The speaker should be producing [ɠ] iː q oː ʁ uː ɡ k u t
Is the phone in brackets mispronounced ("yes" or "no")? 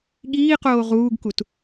no